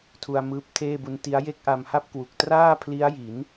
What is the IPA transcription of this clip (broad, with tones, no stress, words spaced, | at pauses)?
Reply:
tʰu˧a̯mɯː˦˥p̚tʰeː˥˩bu˦˥n ti˦˥a̯je˥˩k̚ʔa˧m ha˥˩p̚kwu˨˩k̚ traː˥˩pʰli˦˥a̯ji˩˦n